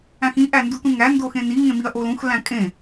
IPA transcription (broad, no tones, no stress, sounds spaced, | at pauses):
æ̃ x ĩ ʔ æ n d u t ũ ŋ æ n d o x ẽ n i ŋ ẽ m i ɐ̯ ʔ o l ũ x l æ̃ kʼ ẽ